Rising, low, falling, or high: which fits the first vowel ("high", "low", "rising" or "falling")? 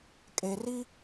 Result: low